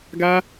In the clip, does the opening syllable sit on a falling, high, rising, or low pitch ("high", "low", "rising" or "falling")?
high